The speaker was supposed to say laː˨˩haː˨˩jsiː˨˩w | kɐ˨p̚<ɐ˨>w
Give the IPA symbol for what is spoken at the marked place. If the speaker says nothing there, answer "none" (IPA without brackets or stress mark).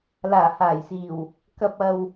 ɐ˨